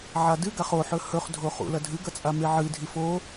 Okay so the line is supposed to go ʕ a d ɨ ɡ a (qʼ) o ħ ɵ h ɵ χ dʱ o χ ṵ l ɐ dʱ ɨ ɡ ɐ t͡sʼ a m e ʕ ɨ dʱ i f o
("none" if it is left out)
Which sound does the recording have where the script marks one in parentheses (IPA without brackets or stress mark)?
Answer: χ